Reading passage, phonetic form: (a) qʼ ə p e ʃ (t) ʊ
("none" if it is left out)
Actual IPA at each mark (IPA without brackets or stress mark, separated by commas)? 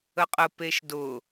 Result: ə, d